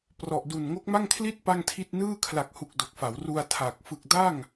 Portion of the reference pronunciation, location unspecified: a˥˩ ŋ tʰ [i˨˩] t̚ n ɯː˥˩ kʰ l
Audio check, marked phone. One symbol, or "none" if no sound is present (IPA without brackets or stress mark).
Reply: i˥˩